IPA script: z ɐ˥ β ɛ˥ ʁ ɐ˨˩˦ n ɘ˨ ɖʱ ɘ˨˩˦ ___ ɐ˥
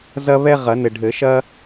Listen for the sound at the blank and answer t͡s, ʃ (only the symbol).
ʃ